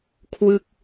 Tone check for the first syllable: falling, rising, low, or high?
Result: falling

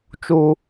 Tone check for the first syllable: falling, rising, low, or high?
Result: high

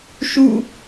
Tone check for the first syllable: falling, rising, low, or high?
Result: falling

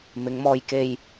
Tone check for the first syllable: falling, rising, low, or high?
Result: rising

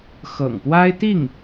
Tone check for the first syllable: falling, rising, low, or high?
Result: low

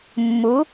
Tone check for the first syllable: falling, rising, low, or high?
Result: rising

